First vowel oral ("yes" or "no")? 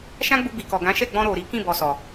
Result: no